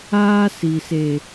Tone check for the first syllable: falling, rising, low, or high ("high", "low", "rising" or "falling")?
high